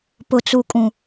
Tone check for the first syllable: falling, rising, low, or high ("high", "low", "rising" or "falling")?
low